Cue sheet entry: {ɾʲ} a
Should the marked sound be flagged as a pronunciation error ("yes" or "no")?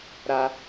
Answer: yes